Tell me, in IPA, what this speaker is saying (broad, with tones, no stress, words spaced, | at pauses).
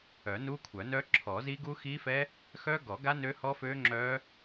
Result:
œ˨˩˦nu˦˥kʷʰœ˨˩˦nœ˦˥ ǁʰɔ˨˩˦zi˦˥ɡu˦˥ xi˦˥fɛ˦˥ | xœ˦˥ ɡɔ˨˩˦ɡa˦˥ nø˦˥hɔ˦˥fø˦˥ŋ͡ǁœ˦˥